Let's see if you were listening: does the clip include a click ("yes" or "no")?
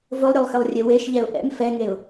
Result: no